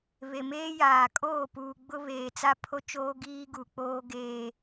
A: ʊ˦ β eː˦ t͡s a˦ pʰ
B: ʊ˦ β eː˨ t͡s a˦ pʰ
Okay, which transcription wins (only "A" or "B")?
B